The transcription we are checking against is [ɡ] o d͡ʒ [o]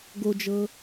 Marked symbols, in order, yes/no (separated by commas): yes, no